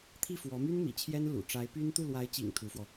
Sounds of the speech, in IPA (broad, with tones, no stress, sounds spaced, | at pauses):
t̪ʰ i˥˩ f w ɔ˧˥ m y˥ n m ḭ˨˩ t͡ɕʰ j ɛ˥ n l ṵ˨˩ ʈ͡ʂ a˧˥ ɪ̯ p y˥ n t̪ u˥˩ l w a˧˥ ɪ̯ t͡ɕ ḭ˨˩ ŋ t̪ʰ u˧˥ f w ɔ˧